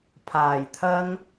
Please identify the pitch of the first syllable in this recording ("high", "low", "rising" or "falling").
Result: low